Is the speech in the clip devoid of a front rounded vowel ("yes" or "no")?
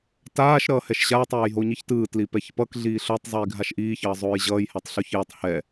yes